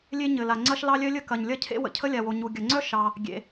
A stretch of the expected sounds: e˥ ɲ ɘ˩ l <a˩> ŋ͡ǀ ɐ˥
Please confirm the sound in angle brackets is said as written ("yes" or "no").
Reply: yes